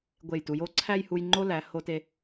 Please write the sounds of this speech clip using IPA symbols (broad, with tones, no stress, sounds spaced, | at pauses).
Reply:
ɡʷ e˧˩ j t u˩˧ j o˥˧ ǀʰ æ˥˧ j h u˧ j ŋ͡ǃ o˥ l æ˩˧ h o˧ t e˧